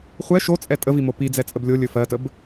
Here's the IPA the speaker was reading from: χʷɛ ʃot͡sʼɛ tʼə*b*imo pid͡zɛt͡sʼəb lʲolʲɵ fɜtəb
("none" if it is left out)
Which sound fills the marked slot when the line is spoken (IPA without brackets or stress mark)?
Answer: v